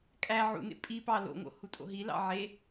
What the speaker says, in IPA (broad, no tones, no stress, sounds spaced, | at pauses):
kʼ æ ʕ ṵ n ḛ pʼ i p ɑ l o̰ ŋ o̰ h u tʼ o̰ ɦ i l ɑ̰ ʕ e